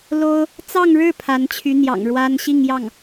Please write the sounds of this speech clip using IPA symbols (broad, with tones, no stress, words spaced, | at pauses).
lo˥ʊ̯ | t͡sɑ˥˧ŋɻɻ̩˥˩ pʰa˧˥nt͡ɕʰy˧˥ n̪jɑ̰˨˩ŋɻwa˥n ɕi˥˧ŋjɑ˥˩ŋ